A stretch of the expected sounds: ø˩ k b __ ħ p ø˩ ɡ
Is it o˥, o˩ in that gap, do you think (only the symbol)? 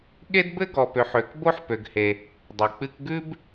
o˥